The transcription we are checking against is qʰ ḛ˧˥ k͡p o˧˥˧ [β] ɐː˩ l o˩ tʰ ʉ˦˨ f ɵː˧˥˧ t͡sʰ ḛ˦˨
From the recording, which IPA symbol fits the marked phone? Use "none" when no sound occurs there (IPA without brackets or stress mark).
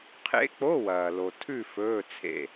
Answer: w